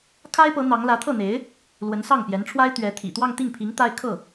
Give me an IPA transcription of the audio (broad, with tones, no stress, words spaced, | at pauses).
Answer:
kʰa˥ɪ̯pɤ˧˥ n̪ɑ˧˥ŋ lä˧˥t̪ʰɤ˥˩n̪e˧˥ɪ̯ | lwə˧˥nsɑ˥˩ŋpjɛ˧˥nʈ͡ʂʰwa˥ɪ̯ t̪ɥɛ˧˥ t̪ʰḭ˨˩t̪wɑ˥˧ŋ t̪i˥˩ŋpʰi˧˥ŋ t̪a˥ɪ̯ kʰɤ˥˩